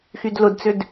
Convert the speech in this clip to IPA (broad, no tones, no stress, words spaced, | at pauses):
xydlʊdt͡sʏd